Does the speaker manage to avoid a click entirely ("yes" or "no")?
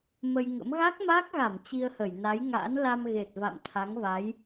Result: yes